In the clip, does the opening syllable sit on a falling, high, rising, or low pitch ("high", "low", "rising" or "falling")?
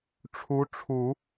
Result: rising